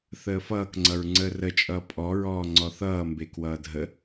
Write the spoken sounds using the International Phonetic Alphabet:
θ əː f ʌː k ŋ͡ǀ ʌ ɹ ŋ͡ǀ əː r ə t͡ʃʼ ʌː pʼ ɔ ɹ ɔː ŋ͡ǀ ɔ θ ʌː m b e k w ʌː dʱ ə

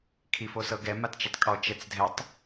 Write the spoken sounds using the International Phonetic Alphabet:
kʰ i f o s ɤ ɡ ɛ m a t t͡ʃ ɛ tˤ kʼ ɔ t͡ʃ ɛ t͡s dʱ ɛ tˤ

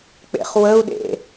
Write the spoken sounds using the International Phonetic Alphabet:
k͡p ḛ χ w ə u̯ ɗ ḛ

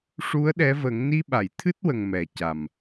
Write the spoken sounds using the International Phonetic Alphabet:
ʂ u˧˥ ə̯ ɗ ɛ˧˥ v ə˨˩˦ ŋ n i˧ ɓ a˨˩˨ j t̪ʰ ɨ˦˥ t̚ w ə˨˩ ŋ m ɛ˨˩ c a˨˩ m

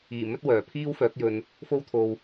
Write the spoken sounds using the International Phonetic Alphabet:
iː˨˩ m ɵ˥ t̚ w œː˨˩ pʰ iː˥ w f œː˨˥ k̚ j ɵ˧ n | f o˥ w t̪ʰ o˧ w

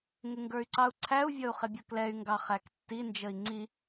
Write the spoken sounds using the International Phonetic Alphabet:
ŋ ɪ ŋ ɡ ə˞ y̯ ǀ ɑ u̯ ǀʰ æ u̯ vʲ ʌ u̯ χ ɪ bʲ ʌ k l ɛ y̯ ŋ ɡ ɑ χ æ k tː i n d͡ʒ ə i̯ ŋ͡ǀ i

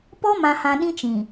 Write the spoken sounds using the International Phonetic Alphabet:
p ɔ˦ m ã˨ h ã˨ ɗ ĩ˦ t͡ʃ ĩ˨

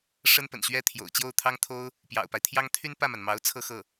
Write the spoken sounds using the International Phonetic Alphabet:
ʂ ə˥ n p ə̰˨˩ n ɕ ɥ ɛ˥ t̪ʰ j o̰˨˩ ʊ̯ t͡ɕ j o˥˩ ʊ̯ t̪ʰ ɑ˥ ŋ t̪ʰ o˥ ʊ̯ | p j ɑ̰˨˩ ʊ̯ p a˦ ɪ̯ t̪ʰ j ɑ˥ ŋ t̪ʰ y˥ n p ä˥˩ m a˩ n m ɑ˧˥ ʊ̯ t͡sʰ ɤ˥˧ x ɤ˥˩

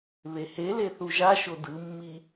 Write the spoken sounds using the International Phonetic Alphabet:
β e h e l e θ u ʒ a ʃ o d ɯ mː i

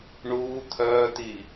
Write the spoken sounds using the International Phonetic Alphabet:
ɳ uː t̪ʰ œː t̪ iː

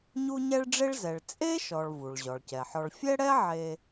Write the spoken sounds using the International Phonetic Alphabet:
ɲ u˥ ɲ ɛ˥ ɭ ɖ͡ʐ e˥ ɭ z ɛ˩ ɭ t͡sʼ e˥ ʃ ɔ˩ ɭ v u˩ ɭ ʑ ɔ˩ ɭ c ɛ˩ ħ ɔ˧ ɭ fʲ ɛ˥ ɽ ɛ˥ ʕ e˧

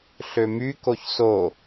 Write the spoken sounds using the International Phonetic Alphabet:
ɬ ø m y k o ç s o

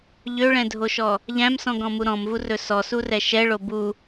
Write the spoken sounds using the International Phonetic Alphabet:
ʎ ø ɭ ɛ̃ dʱ o ʃ ɔ | ʎ æ̃ m s ɔ̃ ɡ ɔ̃ m u ɾ ɔ̃ m v u r ɵ s ɔ s u r ɛ ʃ ɛ ɭ o b u

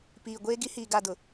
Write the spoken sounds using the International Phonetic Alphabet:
p iː˨ ɡʷ eː˦ ɡ i˦ h iː˨ ɡ a˦˨ d ʊ˨

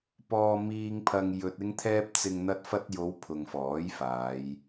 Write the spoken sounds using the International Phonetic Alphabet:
p ɔː˧ m iː˧ ŋ pʰ ɐ˧ ŋ j ɵ˧ t̚ ɪ˥ ŋ t̪ʰ ɛː˥ p̚ t͡s ɪ˨ ŋ n̪ ɐ˧ t̚ f ɐ˧ t̚ j o˨˧ w pʰ ʊ˨ ŋ f ɔː˨˥ j f aː˨˧ j

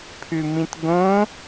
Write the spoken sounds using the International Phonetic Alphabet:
pʰ ʉ m ĩ t ɡ õ

